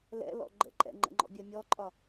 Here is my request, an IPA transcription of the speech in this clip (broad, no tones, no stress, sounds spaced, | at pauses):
l ɛ̰ l ɔ̰ ɡ͡ǃ ə̰ ǃʼ ɛ̰ ŋ͡ǃ ə̰ ŋ͡ǃ ɔ̰ bʲ ɜ mʲ ɔ ǃʼ ɒ